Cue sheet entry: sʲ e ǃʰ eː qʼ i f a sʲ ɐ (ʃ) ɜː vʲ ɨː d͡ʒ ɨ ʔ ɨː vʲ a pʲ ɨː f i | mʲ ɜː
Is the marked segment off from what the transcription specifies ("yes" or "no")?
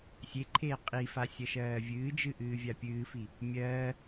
no